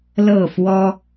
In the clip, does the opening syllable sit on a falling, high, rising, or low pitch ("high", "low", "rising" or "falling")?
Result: falling